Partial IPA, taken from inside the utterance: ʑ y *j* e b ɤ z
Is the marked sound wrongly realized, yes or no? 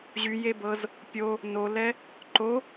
no